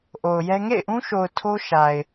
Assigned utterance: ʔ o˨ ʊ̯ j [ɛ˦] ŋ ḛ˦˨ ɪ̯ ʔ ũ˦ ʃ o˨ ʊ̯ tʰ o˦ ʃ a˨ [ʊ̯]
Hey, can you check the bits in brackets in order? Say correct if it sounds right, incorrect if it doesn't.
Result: correct, incorrect

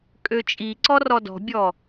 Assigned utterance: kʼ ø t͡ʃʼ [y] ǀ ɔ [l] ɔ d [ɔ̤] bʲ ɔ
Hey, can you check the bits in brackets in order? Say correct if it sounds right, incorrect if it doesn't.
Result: incorrect, incorrect, correct

